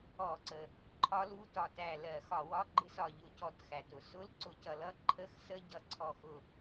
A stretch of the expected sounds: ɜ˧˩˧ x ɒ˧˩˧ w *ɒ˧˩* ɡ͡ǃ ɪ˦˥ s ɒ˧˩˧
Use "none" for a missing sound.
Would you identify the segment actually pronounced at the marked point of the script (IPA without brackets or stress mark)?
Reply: ɒ˧˥˧